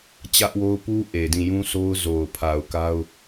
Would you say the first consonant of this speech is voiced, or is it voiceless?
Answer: voiceless